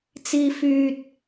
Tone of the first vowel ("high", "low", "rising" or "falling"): high